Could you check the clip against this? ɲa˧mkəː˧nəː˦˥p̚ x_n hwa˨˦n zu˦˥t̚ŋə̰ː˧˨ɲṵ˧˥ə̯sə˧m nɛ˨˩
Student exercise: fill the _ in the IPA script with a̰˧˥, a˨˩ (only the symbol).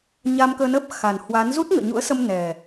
a˨˩